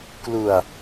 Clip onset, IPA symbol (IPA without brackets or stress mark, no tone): k